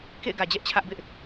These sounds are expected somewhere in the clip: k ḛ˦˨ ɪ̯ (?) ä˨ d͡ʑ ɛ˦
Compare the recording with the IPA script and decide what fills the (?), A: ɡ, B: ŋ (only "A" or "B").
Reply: A